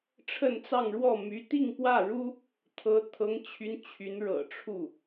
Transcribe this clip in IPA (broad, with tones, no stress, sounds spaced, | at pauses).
ʈ͡ʂʰ ə˥˧ n t͡s ɑ˥˧ ŋ ɻ w ɔ˥˩ m y˧˥ t̪ i˥˧ ŋ p w ä˥˩ ɻ u˥ | t̪ʰ ɤ˧˥ t̪ʰ ɤ˧˥ ŋ t͡ɕʰ y˧˥ n t͡ɕʰ y˧˥ n ɻ ɤ̰˨˩ ʈ͡ʂʰ u˥˩